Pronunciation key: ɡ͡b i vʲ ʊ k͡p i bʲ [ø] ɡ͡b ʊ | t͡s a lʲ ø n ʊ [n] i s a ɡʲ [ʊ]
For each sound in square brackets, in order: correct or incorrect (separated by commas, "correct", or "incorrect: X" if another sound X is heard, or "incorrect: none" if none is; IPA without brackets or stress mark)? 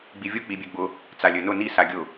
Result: correct, correct, correct